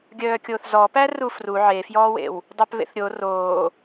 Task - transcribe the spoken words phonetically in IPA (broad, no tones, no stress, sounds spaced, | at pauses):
ɡʲ œː kʲ oː θ z ɔ p æ r u f r u ʕ e f j ɔː w ḛ w | dˤ œ p β ḛ θ ɾʲ o r oː